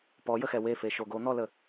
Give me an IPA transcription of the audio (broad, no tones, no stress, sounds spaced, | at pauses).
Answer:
p ɔ j ə x ɛ w e f e ʃ o ɡ o n̪ ɔ l ə